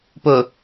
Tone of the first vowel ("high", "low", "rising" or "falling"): low